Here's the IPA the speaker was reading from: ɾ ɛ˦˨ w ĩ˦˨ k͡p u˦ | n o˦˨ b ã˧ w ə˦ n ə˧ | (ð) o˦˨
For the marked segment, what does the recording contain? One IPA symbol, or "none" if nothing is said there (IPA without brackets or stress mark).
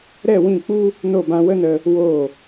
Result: w